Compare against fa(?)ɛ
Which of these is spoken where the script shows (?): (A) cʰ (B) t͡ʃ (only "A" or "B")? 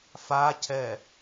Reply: A